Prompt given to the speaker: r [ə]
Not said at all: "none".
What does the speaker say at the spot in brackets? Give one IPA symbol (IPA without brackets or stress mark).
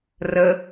ə